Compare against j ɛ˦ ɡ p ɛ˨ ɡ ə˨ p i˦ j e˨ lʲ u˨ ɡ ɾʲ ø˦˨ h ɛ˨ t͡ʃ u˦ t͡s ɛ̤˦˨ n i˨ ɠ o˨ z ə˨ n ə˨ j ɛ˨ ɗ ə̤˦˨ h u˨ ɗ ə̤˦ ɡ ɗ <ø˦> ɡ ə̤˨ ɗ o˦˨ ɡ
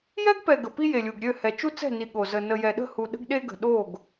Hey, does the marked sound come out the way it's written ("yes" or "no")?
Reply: no